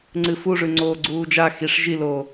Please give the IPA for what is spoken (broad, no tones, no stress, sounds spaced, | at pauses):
ŋ͡ǀ ɨ f u ʐ ʉ ŋ͡ǀ oː ɡ͡ǀ uː d͡ʒ a x i ʂ ʒ i l oː